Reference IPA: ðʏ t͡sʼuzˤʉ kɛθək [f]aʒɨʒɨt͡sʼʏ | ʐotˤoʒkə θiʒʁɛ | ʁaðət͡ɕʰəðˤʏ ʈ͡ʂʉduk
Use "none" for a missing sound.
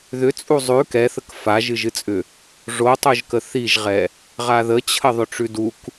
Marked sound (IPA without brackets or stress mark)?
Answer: f